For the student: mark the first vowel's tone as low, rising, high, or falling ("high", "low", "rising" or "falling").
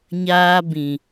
high